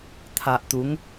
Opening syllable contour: low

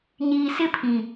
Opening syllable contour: low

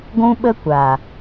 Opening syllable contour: high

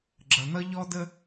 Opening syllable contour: low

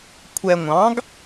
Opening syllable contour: low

